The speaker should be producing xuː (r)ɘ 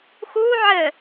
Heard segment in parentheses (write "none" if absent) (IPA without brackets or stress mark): ʕ